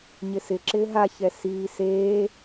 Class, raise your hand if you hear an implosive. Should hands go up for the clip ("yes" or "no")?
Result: no